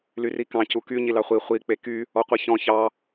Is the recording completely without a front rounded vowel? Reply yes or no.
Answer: no